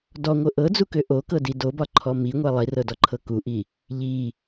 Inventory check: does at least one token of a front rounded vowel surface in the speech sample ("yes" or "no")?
yes